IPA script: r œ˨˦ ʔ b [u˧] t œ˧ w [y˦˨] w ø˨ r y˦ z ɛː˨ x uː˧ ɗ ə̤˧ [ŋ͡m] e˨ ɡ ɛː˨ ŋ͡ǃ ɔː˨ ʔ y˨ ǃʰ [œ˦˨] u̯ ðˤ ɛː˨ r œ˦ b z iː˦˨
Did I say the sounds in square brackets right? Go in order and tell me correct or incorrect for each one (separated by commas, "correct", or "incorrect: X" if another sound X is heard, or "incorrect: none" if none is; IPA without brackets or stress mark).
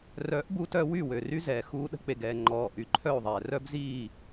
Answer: correct, correct, incorrect: k͡p, correct